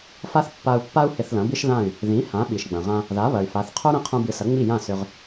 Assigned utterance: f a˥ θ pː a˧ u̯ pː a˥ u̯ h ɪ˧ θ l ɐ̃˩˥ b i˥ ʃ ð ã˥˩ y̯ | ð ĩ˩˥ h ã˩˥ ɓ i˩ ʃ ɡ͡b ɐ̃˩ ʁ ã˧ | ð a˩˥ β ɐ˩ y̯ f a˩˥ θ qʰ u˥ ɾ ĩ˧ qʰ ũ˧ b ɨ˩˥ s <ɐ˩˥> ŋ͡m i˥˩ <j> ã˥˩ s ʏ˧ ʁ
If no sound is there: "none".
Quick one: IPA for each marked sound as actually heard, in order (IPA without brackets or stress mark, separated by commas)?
ɐ˩˥, j